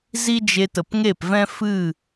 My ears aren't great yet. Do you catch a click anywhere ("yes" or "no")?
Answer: no